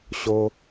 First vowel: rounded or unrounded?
rounded